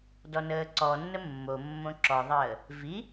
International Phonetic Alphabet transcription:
d ɔ n əː ǀ ɔ nː ə mː o mː õ ǁ ɔ ðˤ əː | v i

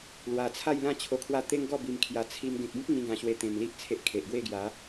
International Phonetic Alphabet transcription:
l w a˨˩ t͡sʰ a˥˧ j l ã˥˧ t͡ɕʰ o˧ kʰ w a˥˧ t̪ e˦ ŋ ɡ ɔ˥˧ b i˧ m kʰ j a˧ t͡sʰ i˧ m ɡ ẽ˨ k̚ b ĩ˦ k̚ ŋ ĩ˦ ɡ ã˧ ɕ w e˧ t̪ ẽ˨˩ m l i˦ ʔ t͡sʰ e˦ ʔ kʰ e˨ ʔ ɡ w e˥˧ ɡ j a˨˦

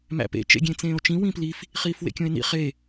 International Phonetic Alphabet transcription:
m æ̰ p ḛ t͡ʃ ḛ ɡʲ ẽ t͡s ẽː o̯ t͡ʃ ĩ w ĩ p l i f | χ iː f w ḛ kʲ õ e̯ n ḭ χ e

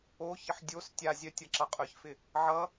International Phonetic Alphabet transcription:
o ç ə ħ dʲ o s tʲ a zʲ œ tʲ ʌ ǁ ʌ qʼ œ ç f ɪ | ʕ ʌ

